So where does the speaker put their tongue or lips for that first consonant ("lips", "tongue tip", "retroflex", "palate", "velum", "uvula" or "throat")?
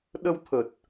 tongue tip